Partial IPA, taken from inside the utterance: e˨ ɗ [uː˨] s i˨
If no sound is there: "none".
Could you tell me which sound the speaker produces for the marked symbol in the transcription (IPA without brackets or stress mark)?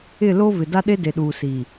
uː˨